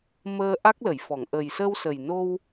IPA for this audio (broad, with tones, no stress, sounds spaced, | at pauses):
m əː˧ ʔ a˦˥ k̚ l ə˨˩˨ j f ɔ˨˩˨ ŋ ʔ ə˨˩ j s ə˧ w s ə˨˩ j n o˧ w